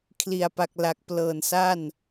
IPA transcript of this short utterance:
kʰli˨˩a̯pa˨˩k̚la˨˩k̚plɤː˨˩n sa˥˩n

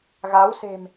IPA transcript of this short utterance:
ɣa˨˦wse̤˨˩m

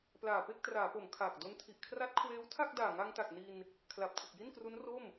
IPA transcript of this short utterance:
plaː˨˩pe˥˩k̚traː˩˦po˩˦m kʰaː˨˩k̚do˦˥ntʰi˨˩ʔ kʰra˦˥t̚kʰweː˦˥wtʰa˥˩k̚daː˨˩ ŋa˧ŋta˨˩k̚ ni˧n | kʰla˨˩p̚tʰɯ˨˩k̚ ji˥˩nkru˦˥n ro˥˩m

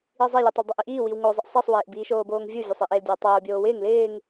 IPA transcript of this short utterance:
izˤelʲetˤɪl dˤeʔiʔiː wiwŋozˤɪʔ sˤisˤwɪːʔ biːʃoːboːŋvʲu vʲosˤiʔeldʲow tˤoː bʲoːwɪːŋ lɪːŋ

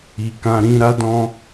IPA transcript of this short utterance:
i˨kã˧ɾĩ˦ ɾa˦dɔ̃˦

